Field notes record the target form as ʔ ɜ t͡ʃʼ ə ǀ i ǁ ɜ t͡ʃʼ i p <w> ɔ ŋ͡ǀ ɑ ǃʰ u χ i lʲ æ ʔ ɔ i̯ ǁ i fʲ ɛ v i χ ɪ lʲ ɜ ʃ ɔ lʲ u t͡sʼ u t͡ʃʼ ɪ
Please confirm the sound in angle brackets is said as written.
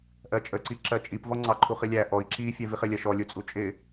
no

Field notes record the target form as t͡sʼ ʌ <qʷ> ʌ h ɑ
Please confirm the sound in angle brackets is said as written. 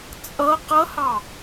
no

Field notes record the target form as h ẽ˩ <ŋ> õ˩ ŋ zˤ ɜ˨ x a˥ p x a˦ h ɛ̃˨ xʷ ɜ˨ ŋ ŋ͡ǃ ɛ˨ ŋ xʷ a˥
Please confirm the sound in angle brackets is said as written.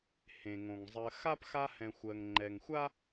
yes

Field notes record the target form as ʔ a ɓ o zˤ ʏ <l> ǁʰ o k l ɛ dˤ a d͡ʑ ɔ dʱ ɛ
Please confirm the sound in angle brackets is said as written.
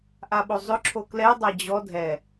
no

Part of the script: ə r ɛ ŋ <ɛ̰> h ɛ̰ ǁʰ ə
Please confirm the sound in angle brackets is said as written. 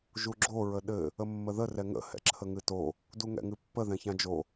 no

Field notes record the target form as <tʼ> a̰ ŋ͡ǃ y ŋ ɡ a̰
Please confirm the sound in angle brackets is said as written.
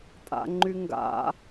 yes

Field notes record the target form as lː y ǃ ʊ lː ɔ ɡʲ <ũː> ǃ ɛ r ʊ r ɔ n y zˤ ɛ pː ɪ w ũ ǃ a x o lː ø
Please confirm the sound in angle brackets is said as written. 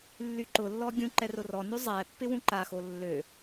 no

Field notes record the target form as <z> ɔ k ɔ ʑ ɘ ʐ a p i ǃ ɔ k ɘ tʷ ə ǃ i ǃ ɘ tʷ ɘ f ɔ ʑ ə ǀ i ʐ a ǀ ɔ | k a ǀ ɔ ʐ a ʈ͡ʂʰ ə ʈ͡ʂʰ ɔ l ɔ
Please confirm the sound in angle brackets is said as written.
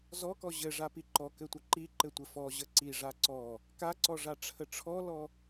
yes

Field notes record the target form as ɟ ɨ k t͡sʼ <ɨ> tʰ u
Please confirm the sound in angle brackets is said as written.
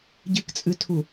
yes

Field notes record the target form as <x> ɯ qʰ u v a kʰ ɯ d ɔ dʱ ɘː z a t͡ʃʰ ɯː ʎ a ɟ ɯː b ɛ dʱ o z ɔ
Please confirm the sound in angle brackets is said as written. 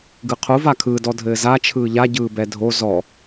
no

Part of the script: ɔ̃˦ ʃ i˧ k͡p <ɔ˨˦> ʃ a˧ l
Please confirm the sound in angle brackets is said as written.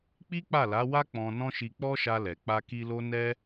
no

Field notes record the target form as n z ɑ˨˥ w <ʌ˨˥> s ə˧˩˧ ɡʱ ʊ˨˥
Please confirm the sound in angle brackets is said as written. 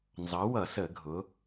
no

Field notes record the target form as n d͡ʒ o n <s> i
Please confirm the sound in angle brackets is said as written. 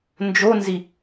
no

